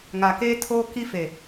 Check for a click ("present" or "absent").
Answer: absent